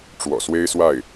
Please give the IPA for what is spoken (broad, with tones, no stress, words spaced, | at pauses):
ʈ͡ʂwɔ̰˨˩swe˥ɪ̯swa˥˩ɪ̯